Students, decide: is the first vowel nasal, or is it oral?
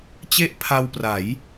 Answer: oral